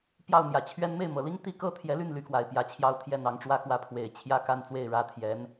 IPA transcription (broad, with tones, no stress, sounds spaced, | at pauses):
p j ɑ˥˩ ʊ̯ n̪ j ä˨˩ t͡ɕʰ ɥ ɛ˥ n m e˥˩ ɪ̯ m ɤ˨˩ l i˥ ŋ t̪ i˥˩ k ɤ˥ t̪ʰ j ɛ˧˥ l y˥˩ n l y˧˥ k w a˨˩ ɪ̯ p j ä˧˥ t͡ɕʰ j ɑ˥ ʊ̯ t̪ʰ j ɛ˥˩ n̪ ɑ˧˥ ŋ ʈ͡ʂ w ä˥ k w ä˥˩ pʰ w e˨˩ ɪ̯ t͡ɕʰ j ä˥˧ k a˥˧ n t͡s w e˥˩ ɪ̯ ɻ ä˧˥ t̪ʰ j ɛ˧˥ n